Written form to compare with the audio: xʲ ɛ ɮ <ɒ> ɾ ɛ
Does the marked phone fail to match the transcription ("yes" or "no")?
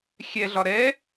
no